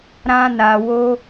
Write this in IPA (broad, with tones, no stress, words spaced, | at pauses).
ɾã˦na˧wo˦